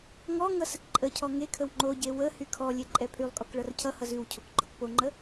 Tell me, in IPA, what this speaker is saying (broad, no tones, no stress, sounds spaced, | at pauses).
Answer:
ŋ ɔ ŋ ʌ s ə k ǃʼ ə cʰ ɔ ŋ e kʰ ə w ŋ͡ǃ o ɟ e w ə h y kʰ ɔ lʲ e ǃʼ ɛ pʰ y lˠ kʼ ɔ k ɭ ʌ r cʰ ʌ h ʌ z ʉ w cʰ o k ɡ͡ǃ ɔ k p o ŋ͡ǃ ə